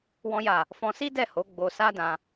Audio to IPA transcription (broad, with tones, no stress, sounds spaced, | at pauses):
w ɔ̃˦ j a˦˨ | f ɔ̃˧ s i˦ d ɛ˦˨ h o˨˦ ɡ͡b o˧ s a˦ d ã˧